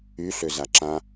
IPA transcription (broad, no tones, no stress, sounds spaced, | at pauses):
y ɬ ø z a ǁ ã